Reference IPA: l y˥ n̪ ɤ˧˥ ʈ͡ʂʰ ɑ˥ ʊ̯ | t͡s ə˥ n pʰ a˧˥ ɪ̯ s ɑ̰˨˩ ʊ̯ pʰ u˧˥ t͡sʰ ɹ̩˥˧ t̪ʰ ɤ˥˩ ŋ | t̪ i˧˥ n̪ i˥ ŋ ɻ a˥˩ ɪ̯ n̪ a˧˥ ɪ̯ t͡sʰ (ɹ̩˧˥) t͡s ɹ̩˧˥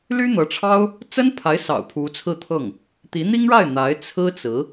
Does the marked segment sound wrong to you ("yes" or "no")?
yes